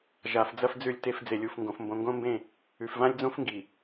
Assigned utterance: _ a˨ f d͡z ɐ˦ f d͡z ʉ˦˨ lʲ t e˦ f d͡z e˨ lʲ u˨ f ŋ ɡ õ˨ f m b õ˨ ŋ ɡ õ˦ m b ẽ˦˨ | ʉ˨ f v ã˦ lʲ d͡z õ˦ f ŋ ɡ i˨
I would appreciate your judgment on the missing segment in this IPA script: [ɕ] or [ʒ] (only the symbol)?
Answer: ʒ